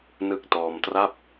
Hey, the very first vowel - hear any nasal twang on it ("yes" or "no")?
no